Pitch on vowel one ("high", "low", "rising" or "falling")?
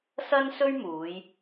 high